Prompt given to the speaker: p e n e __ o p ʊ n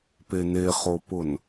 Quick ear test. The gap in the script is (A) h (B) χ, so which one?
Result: B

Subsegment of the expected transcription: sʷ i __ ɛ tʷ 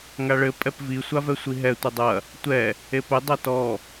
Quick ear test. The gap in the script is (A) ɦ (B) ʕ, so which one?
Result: A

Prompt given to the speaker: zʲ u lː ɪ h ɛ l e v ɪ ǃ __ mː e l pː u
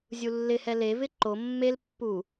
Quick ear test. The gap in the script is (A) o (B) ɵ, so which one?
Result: A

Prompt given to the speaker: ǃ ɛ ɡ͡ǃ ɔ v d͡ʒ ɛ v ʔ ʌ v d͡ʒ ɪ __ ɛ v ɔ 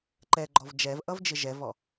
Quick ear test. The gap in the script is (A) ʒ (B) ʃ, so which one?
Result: A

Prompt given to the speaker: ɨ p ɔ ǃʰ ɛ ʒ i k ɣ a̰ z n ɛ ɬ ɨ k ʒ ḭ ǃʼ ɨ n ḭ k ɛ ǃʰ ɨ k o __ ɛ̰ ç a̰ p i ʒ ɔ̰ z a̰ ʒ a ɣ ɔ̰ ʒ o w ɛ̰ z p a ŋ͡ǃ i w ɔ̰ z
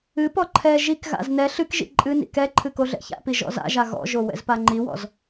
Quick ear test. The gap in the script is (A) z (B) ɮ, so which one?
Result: B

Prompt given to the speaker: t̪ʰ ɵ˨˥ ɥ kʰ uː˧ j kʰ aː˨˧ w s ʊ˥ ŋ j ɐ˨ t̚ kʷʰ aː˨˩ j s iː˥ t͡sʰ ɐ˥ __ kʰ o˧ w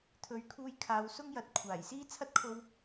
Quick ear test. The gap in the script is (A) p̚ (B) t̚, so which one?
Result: B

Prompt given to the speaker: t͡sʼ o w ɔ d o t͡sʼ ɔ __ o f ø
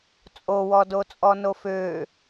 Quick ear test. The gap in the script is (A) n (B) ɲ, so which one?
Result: A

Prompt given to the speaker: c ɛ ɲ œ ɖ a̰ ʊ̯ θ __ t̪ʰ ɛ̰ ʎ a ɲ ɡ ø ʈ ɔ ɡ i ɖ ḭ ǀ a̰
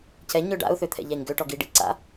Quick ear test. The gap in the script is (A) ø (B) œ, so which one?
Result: A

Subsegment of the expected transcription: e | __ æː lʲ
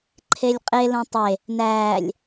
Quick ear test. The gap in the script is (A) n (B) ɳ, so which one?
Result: A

